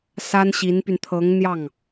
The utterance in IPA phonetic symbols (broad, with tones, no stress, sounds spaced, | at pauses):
s a˥ n ɕ i˧˥ n p y˧ n t̪ʰ ɤ˧˥ ŋ n̪ j ɑ˥˩ ŋ